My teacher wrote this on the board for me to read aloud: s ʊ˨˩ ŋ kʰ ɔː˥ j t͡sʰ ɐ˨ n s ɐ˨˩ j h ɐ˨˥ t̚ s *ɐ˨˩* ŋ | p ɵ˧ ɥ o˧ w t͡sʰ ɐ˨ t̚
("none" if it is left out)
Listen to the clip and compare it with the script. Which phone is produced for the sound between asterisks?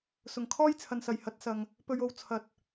ɐ˨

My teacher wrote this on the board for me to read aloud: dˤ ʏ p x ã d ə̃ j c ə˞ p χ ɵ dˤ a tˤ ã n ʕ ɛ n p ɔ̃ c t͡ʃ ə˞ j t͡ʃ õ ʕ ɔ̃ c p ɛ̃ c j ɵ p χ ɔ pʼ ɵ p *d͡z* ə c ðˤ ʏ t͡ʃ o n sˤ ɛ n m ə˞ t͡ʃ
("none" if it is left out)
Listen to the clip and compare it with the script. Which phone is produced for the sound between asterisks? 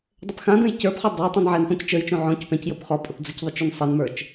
d͡z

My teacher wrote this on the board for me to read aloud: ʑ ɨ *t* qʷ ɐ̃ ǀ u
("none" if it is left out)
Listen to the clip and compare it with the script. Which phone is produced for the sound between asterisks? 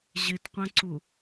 t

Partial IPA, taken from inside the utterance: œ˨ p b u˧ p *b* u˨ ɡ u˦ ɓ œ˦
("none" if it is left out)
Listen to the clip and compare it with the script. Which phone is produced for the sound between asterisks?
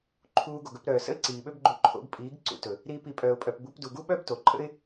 d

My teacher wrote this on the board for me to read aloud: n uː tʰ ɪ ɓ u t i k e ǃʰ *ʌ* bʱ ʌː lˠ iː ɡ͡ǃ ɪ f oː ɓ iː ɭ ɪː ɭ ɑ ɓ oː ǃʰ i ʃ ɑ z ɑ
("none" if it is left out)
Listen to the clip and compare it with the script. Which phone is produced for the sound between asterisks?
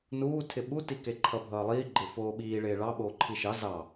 ʌ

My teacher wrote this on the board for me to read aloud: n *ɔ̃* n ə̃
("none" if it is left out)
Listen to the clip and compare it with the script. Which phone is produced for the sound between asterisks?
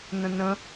ə̃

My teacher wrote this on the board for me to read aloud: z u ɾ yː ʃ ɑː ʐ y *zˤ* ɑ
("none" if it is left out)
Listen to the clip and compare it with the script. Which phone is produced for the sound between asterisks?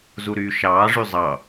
zˤ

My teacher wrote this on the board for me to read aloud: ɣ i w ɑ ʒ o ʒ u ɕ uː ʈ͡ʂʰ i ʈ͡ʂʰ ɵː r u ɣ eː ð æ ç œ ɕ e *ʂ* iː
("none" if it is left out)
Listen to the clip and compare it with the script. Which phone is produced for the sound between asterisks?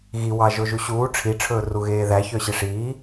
ʂ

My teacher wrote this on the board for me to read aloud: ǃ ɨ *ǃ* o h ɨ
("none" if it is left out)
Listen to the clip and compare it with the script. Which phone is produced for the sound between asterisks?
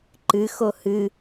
x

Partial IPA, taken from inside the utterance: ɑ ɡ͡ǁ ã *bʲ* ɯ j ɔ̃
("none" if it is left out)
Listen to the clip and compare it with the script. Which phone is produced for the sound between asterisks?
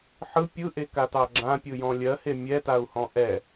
pʲ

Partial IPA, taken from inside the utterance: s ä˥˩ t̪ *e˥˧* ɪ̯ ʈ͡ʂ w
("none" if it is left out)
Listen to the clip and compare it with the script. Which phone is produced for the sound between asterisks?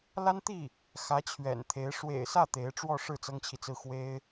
e˧˥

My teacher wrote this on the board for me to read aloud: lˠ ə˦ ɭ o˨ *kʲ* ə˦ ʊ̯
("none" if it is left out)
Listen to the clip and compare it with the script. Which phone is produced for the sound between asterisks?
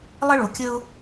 kʲ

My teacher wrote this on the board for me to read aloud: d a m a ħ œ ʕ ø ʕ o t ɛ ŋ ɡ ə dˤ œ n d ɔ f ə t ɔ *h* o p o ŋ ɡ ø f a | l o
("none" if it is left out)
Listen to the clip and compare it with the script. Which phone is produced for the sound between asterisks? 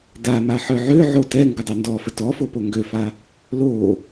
f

